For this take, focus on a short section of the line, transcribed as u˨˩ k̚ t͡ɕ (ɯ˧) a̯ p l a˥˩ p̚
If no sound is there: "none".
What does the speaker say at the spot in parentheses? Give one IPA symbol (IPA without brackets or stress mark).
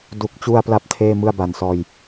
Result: u˧